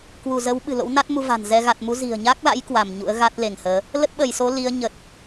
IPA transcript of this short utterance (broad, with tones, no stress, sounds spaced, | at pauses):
k w u˧˩ z ə˨˦ w ɓ ɨ̤˨˩ l o̰˧˥ w n a˦˥ t̚ m u˧ v a̤˨˩ n z ɛ˧ ɣ a˨˩ t̚ m u˨˦ z i̤˨˩ ə̯ ɲ a˦˥ k̚ l a̰˧˥ j k w a˧˩ m ɲ ṵ˧˥ ə̯ ɣ a˦˥ t̚ l e˧˩ ŋ h əː˨˦ | l ə˦˥ t̚ ɓ ə˧˩ j s o˨˦ l i˨˦ ə̯ ɲ ə˨˩ t̚